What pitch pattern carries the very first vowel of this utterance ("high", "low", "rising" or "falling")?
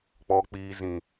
low